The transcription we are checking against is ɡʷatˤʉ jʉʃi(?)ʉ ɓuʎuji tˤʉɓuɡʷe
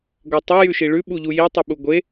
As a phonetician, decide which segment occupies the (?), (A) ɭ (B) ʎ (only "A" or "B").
A